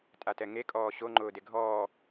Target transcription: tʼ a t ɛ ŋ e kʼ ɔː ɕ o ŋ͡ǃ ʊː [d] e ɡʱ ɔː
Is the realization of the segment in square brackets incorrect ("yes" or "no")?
no